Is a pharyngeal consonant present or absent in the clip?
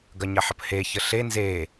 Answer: present